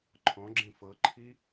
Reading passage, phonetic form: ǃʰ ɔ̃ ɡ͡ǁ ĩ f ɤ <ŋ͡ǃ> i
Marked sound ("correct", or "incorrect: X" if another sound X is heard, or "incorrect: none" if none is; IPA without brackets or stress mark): incorrect: ǃʰ